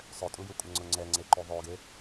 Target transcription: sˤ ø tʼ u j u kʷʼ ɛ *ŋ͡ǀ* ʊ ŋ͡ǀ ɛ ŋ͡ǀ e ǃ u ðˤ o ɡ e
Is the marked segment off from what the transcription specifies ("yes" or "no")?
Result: no